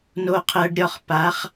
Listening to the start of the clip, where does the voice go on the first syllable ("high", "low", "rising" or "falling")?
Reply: low